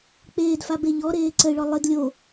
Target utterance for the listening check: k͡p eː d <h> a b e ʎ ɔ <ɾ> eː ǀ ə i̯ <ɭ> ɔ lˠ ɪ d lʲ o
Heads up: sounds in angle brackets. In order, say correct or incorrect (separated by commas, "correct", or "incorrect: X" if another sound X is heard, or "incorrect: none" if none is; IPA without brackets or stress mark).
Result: incorrect: f, correct, correct